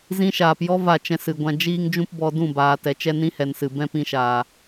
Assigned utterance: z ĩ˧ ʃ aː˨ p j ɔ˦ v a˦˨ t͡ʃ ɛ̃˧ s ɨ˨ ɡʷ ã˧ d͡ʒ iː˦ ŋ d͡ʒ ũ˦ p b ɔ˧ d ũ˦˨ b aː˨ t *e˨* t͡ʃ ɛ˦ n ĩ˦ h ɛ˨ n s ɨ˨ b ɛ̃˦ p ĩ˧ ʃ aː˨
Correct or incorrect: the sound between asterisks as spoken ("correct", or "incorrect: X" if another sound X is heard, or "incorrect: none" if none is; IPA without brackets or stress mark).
incorrect: ɛ˨